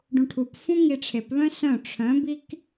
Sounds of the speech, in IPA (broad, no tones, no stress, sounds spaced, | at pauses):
ɖ ũ ʈʰ u p f ũ ŋ i ʈ͡ʂʰ e p β œ̃ s œ̃ ʈ͡ʂʰ œ̃ b i k